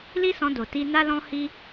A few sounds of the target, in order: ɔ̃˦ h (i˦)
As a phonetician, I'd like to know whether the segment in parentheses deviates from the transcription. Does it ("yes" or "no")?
no